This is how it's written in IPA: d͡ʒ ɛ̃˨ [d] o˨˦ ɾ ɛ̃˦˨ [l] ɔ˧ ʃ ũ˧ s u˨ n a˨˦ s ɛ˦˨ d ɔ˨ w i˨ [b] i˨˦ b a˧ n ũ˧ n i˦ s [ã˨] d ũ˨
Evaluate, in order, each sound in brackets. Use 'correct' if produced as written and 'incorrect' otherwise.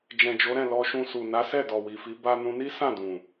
incorrect, correct, incorrect, incorrect

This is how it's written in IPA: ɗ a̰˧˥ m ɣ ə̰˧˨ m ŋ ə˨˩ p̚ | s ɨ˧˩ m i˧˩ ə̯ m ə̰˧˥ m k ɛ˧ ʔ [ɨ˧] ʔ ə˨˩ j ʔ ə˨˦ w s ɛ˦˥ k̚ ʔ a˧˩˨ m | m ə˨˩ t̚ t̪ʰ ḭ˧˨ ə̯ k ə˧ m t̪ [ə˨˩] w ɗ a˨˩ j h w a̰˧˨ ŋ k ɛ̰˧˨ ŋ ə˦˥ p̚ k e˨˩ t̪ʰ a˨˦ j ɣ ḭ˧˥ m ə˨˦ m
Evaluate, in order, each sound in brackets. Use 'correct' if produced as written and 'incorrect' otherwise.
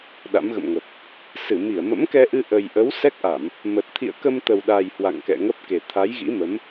correct, correct

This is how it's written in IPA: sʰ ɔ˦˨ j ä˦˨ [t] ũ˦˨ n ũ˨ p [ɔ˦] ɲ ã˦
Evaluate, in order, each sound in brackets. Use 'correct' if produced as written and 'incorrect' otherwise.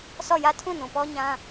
incorrect, correct

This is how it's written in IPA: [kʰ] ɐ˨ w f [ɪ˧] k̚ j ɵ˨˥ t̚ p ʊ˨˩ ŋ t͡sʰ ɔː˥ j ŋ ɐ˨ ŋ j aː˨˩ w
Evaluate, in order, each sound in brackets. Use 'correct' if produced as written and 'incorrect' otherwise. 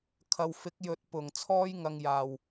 correct, incorrect

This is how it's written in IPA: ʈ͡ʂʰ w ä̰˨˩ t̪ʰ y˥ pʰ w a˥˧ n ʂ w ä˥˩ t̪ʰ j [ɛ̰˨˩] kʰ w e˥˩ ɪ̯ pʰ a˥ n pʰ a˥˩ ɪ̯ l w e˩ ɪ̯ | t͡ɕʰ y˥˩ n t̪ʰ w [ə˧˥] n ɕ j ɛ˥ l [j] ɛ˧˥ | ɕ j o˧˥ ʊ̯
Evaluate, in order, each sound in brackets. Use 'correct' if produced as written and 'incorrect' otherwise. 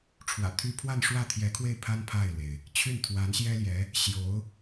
incorrect, incorrect, correct

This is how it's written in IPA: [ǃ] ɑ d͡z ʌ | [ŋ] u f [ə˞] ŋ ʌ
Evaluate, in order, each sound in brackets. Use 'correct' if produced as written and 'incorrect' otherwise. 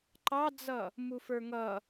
correct, incorrect, correct

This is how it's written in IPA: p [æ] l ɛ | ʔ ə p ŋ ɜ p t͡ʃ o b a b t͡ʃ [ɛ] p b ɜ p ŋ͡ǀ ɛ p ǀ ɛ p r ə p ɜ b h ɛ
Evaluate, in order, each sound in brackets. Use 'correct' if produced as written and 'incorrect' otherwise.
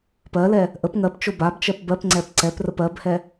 incorrect, incorrect

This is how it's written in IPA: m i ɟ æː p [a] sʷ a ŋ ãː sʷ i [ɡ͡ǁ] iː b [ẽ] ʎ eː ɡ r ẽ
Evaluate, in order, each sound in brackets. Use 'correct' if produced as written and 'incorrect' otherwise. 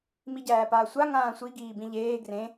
incorrect, incorrect, incorrect

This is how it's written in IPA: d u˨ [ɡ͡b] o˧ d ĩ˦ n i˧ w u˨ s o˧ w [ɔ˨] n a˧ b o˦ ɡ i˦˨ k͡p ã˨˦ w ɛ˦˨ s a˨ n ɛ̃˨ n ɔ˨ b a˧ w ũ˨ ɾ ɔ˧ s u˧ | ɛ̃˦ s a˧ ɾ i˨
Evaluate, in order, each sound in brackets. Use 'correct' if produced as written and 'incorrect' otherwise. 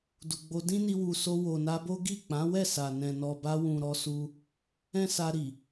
correct, incorrect

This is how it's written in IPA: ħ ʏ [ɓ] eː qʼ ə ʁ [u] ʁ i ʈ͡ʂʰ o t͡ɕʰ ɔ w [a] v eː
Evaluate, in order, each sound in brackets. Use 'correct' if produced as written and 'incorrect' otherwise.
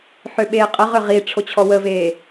correct, incorrect, incorrect

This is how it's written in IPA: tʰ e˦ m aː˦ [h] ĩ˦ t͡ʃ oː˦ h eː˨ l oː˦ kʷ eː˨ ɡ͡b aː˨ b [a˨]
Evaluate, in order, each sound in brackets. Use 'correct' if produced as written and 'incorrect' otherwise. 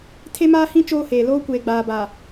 correct, correct

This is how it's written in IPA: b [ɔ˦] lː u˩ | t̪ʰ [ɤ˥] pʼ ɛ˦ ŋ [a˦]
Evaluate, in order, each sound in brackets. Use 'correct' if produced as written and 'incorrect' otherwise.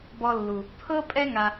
incorrect, correct, incorrect

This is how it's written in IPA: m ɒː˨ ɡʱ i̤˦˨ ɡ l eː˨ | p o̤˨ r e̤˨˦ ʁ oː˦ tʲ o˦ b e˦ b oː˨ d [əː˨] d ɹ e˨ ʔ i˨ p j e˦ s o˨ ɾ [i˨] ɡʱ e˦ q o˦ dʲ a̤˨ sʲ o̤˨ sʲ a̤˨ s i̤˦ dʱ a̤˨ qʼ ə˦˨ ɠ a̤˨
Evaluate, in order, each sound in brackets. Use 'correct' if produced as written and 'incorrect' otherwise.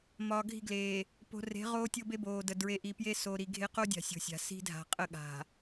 incorrect, correct

